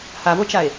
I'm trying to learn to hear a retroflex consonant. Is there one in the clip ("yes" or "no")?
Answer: no